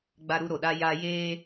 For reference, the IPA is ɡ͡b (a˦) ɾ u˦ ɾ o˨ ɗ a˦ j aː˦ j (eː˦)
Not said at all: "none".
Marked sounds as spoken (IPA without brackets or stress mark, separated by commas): a˦, eː˦